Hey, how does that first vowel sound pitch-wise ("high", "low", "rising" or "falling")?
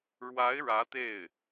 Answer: rising